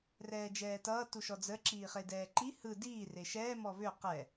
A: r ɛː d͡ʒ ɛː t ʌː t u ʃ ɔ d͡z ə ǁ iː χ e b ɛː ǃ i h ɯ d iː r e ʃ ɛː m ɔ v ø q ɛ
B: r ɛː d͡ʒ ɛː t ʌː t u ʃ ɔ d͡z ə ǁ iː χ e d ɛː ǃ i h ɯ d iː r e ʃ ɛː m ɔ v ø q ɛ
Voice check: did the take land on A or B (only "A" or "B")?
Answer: B